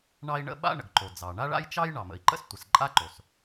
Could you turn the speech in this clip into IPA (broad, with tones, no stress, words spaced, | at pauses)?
ɳɑ˥i̯ɳə̰˥ɓa̰˥ ɳə̰˩ɡǃo˩d͡zɑ˩ ɳa˥ɭa̰˥jt͡ʃɑ˥j ɳɑ˩mə̰˩i̯ǃə̰˥s tʷə˩sǃʼa˥ǃo˩s